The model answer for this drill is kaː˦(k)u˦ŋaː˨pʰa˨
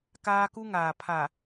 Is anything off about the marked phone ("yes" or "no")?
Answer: no